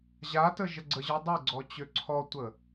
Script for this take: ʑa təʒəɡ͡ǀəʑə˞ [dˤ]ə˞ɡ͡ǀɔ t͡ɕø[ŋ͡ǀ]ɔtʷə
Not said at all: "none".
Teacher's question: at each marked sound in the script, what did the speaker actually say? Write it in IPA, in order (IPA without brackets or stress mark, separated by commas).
dˤ, ǀʰ